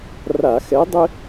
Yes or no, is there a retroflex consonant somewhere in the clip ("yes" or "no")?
no